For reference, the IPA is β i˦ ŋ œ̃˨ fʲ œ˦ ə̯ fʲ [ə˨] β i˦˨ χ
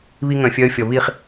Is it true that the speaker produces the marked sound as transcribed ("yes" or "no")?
no